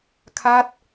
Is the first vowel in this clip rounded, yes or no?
no